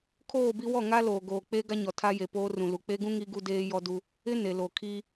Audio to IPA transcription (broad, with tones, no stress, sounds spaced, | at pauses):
kʰ oː˦˨ b i˦ w ɔ˦˨ ŋ a˦ l oː˨ ɡ oː˨ k͡p e˦ ɡ a˦ ɲ ɔ˨ tʰ a˦ j e˨ p oː˦ r ũ˨ l u˨ k͡p e˦ ɡ ũ˦ ŋ i˦ ɡ u˦ d eː˦ j ɔ˦ d u˦ | ɪ˦ n e˨ l o˨ kʰ i˦